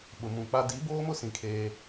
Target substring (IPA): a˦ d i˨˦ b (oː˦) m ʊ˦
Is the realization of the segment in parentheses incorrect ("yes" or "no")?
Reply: no